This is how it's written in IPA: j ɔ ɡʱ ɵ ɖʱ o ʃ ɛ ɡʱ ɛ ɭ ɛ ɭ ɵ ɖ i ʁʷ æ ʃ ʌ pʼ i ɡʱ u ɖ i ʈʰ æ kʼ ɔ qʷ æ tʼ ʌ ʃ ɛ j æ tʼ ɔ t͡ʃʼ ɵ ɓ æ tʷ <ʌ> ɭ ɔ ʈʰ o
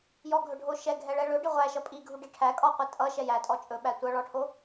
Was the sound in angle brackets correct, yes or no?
yes